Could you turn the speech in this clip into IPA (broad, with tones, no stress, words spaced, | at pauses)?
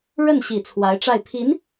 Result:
ɻə˥˩nɕi˨˩ t͡sʰwa˧˥ɪ̯ʈ͡ʂa˥˩ɪ̯ pʰi˧˥n